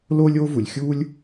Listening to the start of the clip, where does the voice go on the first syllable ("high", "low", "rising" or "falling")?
high